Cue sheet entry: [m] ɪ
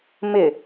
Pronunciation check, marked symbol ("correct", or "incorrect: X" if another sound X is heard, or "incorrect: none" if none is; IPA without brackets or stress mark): correct